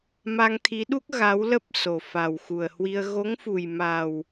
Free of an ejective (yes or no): yes